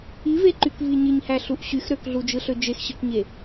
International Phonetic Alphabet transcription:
iveǃykvi ɲiɲhæɬuʔ ɕyx ɾøkɮud͡ʒɯɬø d͡ʒexɕɯkɲe

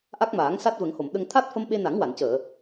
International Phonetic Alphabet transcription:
ʔa˦˥k̚maː˨˩˦ŋ sa˦˥t̚və˨˩˦ŋho˨˩˨m ɗə˧ŋ t̪ʰa˦˥t̚fə˧m ɓe˧na˨˩˦ŋwa˨˩˨ncəː˨˩˨

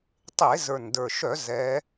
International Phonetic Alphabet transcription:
tˤe˧˩˧zə˞˨˩ndə˞˨˩ʃœ˧˩˧ zɛ˧˥

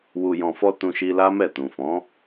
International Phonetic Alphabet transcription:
wu˨jɔ̃˨fɔ˧ tũ˧ʃi˧la˦mɛ˦˨ tũ˨fɔ̃˨˦

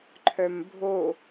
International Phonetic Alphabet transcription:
ǃʰœmbʱo

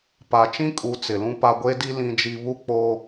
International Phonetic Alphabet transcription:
pa˨t͡ʃĩ˦kʼu˨˦ t͡sɪ˨lũ˦pa˦ ɡʷe˦di˦ lĩ˦d͡ʒi˦ βu˦k͡po˦

